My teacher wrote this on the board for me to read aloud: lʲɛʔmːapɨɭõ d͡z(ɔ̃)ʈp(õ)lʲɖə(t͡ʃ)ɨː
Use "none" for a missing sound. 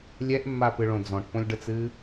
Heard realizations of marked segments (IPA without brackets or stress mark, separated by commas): ɔ̃, õ, t͡s